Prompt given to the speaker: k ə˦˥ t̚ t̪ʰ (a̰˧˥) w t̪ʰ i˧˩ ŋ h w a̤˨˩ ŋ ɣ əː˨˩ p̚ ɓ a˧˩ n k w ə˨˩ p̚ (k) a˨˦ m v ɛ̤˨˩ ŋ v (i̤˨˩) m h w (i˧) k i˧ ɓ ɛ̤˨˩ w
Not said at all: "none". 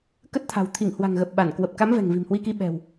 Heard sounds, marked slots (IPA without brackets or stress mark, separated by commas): a̤˨˩, k, i̤˨˩, i˧